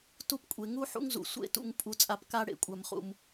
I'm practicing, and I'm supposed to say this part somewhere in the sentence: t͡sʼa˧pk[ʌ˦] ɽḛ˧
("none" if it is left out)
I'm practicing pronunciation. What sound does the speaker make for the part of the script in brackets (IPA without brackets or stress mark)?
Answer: a˦